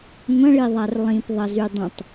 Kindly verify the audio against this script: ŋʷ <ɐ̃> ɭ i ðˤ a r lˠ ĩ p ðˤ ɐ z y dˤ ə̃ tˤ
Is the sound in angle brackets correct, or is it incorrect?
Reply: correct